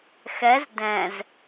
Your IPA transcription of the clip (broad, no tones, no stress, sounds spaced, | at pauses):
x ɛ z d ɛ̃ z